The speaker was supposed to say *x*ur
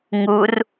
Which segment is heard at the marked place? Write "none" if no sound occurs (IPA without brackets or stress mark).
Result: ŋ